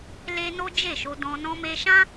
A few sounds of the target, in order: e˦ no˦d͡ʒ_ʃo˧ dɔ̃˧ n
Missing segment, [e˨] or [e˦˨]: e˦˨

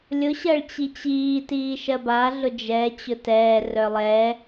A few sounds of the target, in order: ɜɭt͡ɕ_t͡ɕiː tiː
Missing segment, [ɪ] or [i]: i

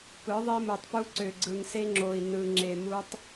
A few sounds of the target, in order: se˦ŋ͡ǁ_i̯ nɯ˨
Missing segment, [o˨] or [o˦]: o˨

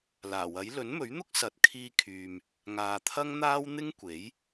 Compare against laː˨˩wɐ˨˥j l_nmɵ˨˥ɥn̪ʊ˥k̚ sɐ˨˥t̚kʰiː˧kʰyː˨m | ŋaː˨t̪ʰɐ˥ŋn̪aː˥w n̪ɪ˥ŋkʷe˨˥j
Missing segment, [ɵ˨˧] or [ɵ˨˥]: ɵ˨˥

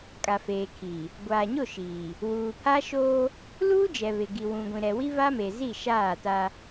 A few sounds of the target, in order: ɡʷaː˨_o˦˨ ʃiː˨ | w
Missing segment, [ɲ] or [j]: ɲ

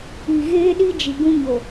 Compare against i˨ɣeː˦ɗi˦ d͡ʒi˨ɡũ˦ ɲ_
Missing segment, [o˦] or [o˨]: o˨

